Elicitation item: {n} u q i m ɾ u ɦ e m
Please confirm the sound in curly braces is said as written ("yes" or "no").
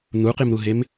yes